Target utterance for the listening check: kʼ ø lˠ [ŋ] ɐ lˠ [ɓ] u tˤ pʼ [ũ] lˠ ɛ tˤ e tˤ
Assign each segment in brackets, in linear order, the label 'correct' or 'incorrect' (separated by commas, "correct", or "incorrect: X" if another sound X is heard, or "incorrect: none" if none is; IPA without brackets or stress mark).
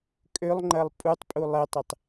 incorrect: ŋ͡ǃ, incorrect: pʼ, incorrect: u